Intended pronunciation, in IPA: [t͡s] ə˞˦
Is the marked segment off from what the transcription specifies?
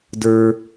yes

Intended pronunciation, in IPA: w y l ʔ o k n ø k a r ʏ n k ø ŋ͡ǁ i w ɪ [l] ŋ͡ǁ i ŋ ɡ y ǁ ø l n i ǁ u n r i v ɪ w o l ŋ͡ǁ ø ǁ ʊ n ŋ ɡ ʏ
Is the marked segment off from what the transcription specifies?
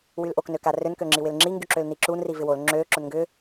no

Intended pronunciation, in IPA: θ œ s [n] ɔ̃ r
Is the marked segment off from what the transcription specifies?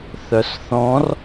yes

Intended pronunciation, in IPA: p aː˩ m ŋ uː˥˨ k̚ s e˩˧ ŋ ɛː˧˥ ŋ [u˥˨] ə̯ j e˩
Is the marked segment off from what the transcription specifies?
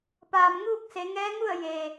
no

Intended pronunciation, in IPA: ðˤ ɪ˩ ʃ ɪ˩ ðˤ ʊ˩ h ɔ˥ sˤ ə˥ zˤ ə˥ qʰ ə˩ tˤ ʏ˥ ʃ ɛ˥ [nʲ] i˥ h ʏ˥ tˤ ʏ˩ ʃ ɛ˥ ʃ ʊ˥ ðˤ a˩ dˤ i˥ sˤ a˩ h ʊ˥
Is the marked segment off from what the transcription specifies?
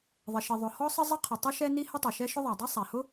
yes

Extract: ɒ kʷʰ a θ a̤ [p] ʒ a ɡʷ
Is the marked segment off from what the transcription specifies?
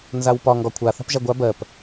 no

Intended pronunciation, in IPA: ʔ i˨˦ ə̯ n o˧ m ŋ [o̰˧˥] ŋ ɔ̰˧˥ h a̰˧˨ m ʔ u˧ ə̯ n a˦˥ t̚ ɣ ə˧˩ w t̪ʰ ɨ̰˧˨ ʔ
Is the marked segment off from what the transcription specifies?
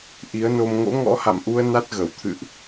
no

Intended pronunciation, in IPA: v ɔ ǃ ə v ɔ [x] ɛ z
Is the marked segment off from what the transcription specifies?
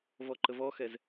no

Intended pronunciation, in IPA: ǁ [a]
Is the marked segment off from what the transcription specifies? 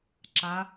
no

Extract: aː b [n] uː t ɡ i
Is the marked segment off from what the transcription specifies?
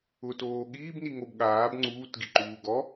yes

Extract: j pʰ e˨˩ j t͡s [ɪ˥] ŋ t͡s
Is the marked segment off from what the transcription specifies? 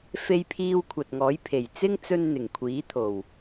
no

